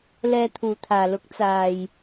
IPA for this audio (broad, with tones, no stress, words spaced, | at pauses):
lɛː˧t̪ʰuː˨t̪ʰaː˨lʊ˨˥k̚ t͡saː˨j